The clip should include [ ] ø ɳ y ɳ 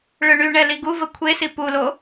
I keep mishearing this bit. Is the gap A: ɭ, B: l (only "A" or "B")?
A